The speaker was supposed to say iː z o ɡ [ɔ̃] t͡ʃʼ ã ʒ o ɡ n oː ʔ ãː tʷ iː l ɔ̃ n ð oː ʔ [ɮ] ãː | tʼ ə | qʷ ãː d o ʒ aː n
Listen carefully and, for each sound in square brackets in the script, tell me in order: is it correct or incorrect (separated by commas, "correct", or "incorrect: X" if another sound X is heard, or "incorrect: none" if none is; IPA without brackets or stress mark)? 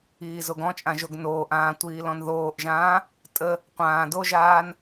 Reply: correct, incorrect: ʒ